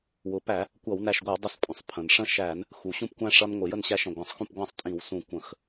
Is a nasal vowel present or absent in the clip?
present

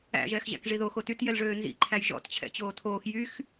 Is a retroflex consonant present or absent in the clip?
present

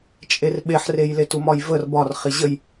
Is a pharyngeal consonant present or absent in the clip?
present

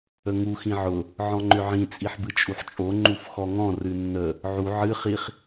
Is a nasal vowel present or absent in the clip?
present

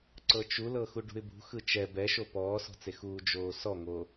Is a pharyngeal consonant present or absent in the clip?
absent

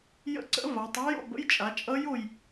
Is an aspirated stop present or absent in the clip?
absent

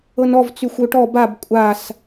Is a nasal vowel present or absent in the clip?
absent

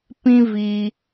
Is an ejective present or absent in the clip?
absent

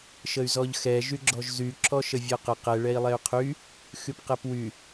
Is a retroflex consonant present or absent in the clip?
present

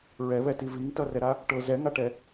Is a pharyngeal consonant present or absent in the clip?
absent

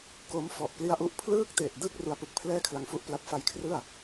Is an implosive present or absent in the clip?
absent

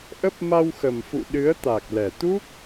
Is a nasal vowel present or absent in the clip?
absent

